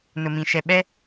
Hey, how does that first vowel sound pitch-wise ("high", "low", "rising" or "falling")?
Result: low